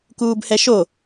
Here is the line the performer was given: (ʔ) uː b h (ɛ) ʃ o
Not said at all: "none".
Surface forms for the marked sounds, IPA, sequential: k, ɛ

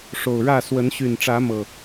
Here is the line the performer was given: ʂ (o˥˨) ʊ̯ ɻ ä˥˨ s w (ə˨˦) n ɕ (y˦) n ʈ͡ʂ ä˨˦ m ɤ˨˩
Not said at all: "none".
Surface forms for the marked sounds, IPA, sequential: o˨˩, ə˨˦, y˨˩

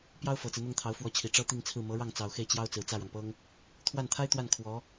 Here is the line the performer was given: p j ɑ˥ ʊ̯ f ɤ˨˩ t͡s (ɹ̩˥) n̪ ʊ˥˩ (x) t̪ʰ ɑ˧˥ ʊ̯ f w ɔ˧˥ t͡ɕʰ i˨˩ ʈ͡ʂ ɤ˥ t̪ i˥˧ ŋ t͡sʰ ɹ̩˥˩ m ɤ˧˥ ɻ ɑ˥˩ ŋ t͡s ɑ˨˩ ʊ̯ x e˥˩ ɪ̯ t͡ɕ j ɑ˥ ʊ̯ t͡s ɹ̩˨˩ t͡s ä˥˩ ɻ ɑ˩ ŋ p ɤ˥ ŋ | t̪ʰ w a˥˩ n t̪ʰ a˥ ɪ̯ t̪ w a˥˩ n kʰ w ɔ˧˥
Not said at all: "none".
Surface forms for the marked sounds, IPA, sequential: ɹ̩˦, ŋ

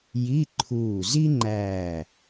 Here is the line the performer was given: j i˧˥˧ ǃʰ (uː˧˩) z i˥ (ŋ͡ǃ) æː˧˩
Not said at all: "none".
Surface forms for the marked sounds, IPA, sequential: uː˧˩, ŋ͡ǃ

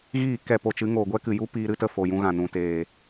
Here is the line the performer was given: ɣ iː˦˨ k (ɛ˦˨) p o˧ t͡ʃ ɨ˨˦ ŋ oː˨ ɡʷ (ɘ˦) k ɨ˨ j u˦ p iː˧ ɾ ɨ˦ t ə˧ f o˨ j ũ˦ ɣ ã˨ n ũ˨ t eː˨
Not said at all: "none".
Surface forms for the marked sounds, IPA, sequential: ɛ˦˨, ɛ˦

